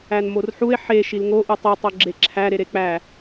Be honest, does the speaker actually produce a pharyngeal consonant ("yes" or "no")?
yes